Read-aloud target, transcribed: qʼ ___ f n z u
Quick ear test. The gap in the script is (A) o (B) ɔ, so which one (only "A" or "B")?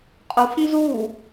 A